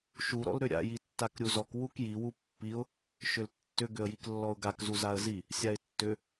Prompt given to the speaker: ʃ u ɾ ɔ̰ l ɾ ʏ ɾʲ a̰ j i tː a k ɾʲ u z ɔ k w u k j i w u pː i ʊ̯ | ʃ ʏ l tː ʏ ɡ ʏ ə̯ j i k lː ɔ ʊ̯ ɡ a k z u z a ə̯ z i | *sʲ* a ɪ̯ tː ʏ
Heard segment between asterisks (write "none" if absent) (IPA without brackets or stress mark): sʲ